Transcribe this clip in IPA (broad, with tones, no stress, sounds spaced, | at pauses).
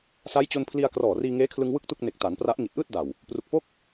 s a˦˥ j t͡ɕ o˧ n pʰ l i˧ a̯ k r ɔː˨˩ r iː˧ ŋ eː˦˥ kʰ l ɯ˧ ŋ w ɯ˥˩ k̚ t u˥˩ k̚ n e˨˩ k̚ t a˩˦ n p r a˦˥ ʔ ŋ i˨˩ t̚ ʔ ɯː˥˩ t̚ d a˨˩ w | p r u˨˩ k̚ f o˥˩ k̚